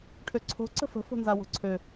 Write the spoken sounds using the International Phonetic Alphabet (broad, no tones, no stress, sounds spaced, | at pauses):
ʈʰ ø ǀʰ o̤ ǀ ə̤ f ə̤ f o̤ n z a w o̤ ǀʰ ø